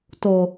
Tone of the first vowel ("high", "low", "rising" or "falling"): low